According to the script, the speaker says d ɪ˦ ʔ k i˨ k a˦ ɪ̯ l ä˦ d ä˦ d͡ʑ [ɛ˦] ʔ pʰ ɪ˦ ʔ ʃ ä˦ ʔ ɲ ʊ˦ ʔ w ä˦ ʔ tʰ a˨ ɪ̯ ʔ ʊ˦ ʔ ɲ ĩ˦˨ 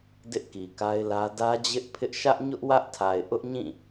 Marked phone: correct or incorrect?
incorrect